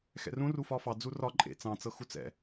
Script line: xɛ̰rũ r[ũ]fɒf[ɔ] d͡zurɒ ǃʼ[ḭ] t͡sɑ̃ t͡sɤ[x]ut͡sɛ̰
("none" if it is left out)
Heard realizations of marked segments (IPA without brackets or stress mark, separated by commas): u, ɑ, ḛ, x